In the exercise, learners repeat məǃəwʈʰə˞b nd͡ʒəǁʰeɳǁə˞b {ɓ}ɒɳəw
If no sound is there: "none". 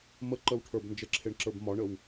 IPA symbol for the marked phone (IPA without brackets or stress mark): m